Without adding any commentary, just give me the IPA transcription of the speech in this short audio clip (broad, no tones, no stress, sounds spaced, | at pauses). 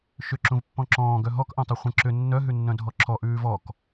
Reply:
ʃ ʏ ǁ ũ v pː ɔ̃ ǁ ɔ̃ː ɡ œ ɦ ɔ k ʔ œ̃ tˤ u χʷ ə̃ ǁ ʏ nː œ ɦ ʉ nː œ̃ dʱ ɔ ǁʰ ɔ ʔ ʉː v ɔ k